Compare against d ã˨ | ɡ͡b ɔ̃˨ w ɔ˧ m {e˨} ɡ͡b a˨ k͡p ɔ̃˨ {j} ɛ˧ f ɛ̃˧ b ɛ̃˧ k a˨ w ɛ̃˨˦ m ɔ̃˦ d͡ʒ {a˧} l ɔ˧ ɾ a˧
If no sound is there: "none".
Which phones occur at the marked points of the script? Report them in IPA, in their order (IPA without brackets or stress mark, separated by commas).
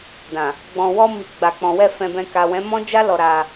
i˨, w, a˦